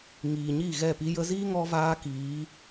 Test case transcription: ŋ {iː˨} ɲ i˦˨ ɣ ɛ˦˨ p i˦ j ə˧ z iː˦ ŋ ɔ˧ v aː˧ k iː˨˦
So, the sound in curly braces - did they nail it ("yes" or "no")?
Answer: yes